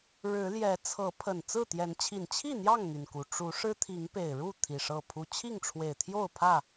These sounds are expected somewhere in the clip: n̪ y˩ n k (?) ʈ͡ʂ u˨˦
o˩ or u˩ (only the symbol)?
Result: u˩